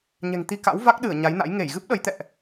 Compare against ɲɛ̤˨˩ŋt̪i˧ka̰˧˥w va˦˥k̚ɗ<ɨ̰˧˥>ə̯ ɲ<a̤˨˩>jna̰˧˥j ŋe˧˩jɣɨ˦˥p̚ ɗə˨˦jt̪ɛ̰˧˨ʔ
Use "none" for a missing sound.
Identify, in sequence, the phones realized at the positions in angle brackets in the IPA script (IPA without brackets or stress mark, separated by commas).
ɨ˧˩, a˨˦